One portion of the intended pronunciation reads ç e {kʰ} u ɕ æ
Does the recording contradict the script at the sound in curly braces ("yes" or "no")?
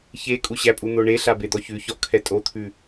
yes